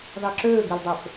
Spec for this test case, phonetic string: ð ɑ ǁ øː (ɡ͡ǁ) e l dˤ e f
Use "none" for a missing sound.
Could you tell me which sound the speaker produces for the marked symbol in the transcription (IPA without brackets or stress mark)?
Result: ɡ